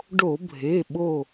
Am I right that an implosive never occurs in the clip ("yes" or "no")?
no